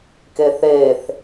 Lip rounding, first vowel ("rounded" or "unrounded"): unrounded